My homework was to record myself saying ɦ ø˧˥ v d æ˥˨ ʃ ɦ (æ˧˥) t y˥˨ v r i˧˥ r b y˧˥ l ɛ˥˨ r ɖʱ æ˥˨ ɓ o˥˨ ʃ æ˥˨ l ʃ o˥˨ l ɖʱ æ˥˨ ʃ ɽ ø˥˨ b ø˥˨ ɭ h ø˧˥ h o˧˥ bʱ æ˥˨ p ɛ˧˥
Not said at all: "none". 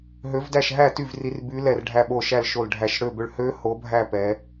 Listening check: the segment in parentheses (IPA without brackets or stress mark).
æ˥˨